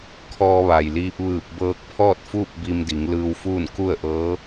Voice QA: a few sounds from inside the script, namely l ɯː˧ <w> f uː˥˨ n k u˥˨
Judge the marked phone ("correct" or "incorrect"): correct